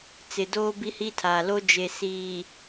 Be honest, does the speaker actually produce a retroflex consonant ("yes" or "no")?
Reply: no